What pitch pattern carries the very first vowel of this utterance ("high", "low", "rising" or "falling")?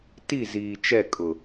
falling